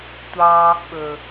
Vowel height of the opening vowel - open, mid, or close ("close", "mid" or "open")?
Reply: open